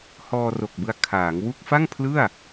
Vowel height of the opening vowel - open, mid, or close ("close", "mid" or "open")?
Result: mid